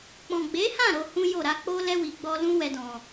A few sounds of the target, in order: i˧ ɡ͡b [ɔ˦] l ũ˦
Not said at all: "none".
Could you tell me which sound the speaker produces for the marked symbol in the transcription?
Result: ɔ˦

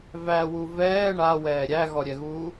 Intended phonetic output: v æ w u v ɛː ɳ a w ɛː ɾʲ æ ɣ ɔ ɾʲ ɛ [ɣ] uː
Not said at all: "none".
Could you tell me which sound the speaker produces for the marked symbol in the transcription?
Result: ɣ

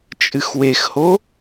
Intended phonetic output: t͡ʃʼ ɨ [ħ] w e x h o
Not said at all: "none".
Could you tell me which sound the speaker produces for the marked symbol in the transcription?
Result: x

